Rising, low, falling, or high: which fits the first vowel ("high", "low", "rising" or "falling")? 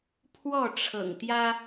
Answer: falling